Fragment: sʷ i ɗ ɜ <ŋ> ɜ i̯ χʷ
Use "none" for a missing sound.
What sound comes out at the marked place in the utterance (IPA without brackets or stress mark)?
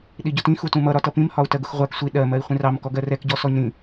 m